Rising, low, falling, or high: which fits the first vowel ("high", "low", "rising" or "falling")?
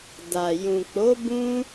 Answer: low